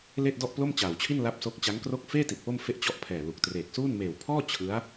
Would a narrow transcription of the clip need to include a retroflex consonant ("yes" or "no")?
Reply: no